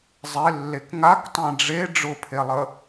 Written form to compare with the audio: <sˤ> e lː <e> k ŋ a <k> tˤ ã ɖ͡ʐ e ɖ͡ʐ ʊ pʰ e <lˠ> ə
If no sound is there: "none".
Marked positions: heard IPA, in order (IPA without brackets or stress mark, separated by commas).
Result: zˤ, e, k, lˠ